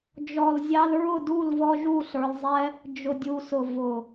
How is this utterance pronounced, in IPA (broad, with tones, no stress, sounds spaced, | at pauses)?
d͡ʒ ɔ˨ l zʲ ɑ˧ l ɹ ʊ˦˨ d u˦˨ l v ɔ˧ ʒ u˦˨ ɬ ə˞˧ l zˤ ɛ˦ | d͡ʒ ʊ˨ dʲ u˨ s ʊ˨ v ʊ˨